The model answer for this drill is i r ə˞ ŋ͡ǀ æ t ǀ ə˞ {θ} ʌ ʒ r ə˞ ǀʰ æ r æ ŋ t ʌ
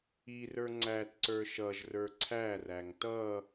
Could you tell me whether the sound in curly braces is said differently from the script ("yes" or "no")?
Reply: yes